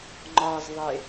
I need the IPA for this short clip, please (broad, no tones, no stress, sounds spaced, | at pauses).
ŋ͡ǃ ɒ z ðˤ e